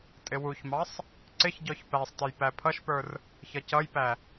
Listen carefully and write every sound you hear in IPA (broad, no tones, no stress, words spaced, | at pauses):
tʼɪwuçmɑsˤ | ǀɪçɟɔç pæsˤtəj pæpʰʌʃpə˞r | çʌcʌjpæ